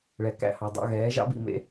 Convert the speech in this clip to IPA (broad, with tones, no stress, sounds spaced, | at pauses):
ɭ ɛ˩ k æ̰˥˩ h ɑ˩ dˤ ɑ̰˥˩ ɣ ɛː˩˥ ʒ ɑ̰˥ b ḭ˥˩ m ḛ˥